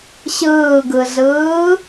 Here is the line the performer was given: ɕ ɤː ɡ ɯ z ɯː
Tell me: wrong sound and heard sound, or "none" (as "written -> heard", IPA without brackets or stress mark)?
ɤː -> ɯː